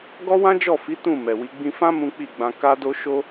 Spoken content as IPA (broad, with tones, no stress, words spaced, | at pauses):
ɡɔ˦wã˦d͡ʒɔ˦˨fi˨˦ tũ˦˨ mɛ˨wi˨˦ɡ͡bĩ˧fã˦ mũ˦k͡pi˦˨ɡ͡bã˧ ka˦do˦ ʃo˦